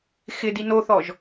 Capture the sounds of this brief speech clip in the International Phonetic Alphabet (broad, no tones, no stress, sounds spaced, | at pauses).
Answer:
x ɪ d i n o θ ɔ ʒ